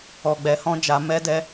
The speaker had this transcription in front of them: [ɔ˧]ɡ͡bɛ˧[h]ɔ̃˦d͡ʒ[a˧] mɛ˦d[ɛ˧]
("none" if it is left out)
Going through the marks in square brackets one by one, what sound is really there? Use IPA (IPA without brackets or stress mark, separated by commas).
ɔ˧, h, a˧, ɛ˦